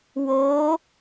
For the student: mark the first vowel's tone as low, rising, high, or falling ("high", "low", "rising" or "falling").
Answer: rising